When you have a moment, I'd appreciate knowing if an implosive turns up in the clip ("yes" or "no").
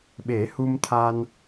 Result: yes